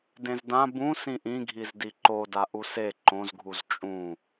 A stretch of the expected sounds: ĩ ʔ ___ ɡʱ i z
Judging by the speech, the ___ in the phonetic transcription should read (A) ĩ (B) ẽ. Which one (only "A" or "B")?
A